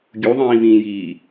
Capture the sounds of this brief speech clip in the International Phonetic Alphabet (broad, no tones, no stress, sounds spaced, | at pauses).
ɡʲ u ðˤ ĩː v ĩː j iː